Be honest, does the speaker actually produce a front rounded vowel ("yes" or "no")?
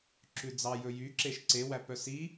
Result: yes